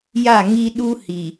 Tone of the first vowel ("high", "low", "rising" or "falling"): falling